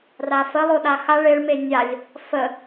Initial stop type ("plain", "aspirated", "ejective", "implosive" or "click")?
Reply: implosive